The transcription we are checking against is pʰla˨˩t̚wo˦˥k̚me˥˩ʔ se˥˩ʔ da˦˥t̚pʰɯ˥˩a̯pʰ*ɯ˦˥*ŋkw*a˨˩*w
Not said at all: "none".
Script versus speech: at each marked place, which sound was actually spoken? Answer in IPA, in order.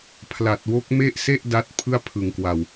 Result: ɯ˨˩, a˨˩

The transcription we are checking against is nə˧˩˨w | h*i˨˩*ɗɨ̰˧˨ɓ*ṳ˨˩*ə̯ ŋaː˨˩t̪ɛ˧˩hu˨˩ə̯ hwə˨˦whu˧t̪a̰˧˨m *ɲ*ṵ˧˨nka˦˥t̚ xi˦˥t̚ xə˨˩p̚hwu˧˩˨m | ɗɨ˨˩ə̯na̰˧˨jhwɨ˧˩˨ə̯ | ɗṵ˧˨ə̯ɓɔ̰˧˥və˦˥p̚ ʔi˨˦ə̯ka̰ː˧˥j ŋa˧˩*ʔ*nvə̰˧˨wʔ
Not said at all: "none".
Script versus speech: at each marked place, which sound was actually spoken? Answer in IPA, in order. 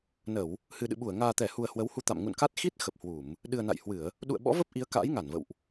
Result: ɨ˨˩, u˧˩, ŋ, none

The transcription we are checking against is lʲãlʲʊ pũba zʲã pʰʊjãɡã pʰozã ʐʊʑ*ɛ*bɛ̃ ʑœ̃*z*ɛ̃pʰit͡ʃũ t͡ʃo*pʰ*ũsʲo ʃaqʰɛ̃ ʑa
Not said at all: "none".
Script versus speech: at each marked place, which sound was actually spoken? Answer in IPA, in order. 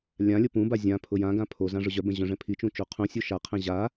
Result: œ, ʐ, qʰ

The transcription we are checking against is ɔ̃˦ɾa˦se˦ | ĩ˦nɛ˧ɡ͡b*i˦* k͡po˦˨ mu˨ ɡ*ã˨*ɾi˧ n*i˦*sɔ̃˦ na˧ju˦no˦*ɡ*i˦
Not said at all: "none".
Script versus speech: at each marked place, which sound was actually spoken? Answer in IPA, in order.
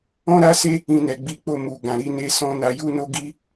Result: i˦, ã˨, e˦, ɡ

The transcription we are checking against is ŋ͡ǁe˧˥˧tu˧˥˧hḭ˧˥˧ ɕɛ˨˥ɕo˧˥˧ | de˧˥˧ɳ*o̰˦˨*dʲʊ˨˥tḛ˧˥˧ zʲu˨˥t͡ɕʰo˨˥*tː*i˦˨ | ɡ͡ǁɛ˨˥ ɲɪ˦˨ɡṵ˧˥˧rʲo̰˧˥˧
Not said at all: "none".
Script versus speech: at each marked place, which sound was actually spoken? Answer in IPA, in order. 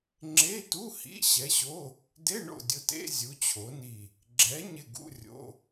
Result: o̰˦˨, n

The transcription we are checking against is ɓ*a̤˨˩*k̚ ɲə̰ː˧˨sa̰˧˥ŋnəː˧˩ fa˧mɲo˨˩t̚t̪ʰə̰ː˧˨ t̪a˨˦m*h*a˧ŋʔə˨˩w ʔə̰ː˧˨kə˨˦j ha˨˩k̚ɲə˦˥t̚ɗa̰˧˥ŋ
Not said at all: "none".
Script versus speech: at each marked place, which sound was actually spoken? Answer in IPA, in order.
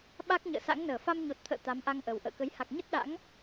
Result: a˦˥, ʔ

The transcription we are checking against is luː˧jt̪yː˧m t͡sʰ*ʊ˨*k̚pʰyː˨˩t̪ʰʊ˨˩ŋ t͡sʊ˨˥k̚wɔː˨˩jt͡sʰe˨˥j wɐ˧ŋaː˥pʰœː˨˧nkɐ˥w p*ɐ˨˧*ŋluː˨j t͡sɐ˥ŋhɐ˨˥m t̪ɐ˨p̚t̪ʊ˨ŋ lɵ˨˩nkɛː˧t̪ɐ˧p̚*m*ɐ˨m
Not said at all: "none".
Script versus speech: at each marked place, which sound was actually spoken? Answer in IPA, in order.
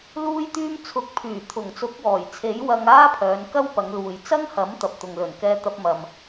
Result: ʊ˨, ɐ˨˧, m

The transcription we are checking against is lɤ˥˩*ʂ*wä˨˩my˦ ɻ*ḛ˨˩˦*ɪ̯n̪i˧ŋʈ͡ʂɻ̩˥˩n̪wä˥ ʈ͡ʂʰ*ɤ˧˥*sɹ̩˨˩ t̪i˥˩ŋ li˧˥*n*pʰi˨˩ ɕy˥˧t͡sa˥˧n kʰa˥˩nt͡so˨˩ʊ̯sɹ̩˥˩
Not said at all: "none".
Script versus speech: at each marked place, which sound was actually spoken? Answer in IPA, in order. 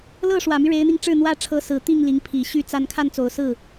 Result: ʂ, e˧˥, ɤ˧˥, ŋ

